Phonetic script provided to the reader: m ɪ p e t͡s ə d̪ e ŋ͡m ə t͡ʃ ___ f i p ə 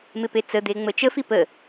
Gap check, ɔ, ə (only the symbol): ə